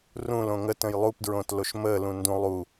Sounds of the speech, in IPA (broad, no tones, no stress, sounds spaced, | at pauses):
r ũ l õ ŋ ə t ə̃ j lˠ u p d ɹ õ t l o ʃ m ə l ũ n d ũ lˠ u